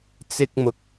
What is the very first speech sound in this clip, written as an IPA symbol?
t͡s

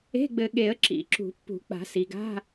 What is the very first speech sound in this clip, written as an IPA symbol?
e̤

